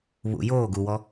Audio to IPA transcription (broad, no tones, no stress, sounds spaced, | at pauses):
β ṵ j oː ɡ u w ɔ